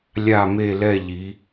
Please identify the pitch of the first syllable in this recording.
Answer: falling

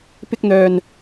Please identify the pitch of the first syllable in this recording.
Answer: high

